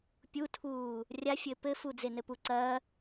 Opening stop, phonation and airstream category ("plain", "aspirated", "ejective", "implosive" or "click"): plain